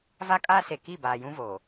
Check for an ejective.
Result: present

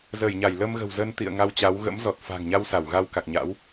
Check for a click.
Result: absent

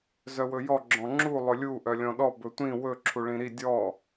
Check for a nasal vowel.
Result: present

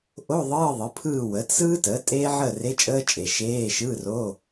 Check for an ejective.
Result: present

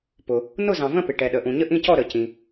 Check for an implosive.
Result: present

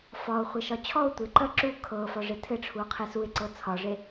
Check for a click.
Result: present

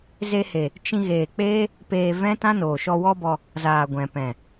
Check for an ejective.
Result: absent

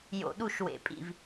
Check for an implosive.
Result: present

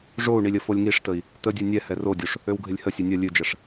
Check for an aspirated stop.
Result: absent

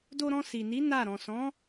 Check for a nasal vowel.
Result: present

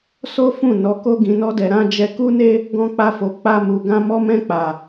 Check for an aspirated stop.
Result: absent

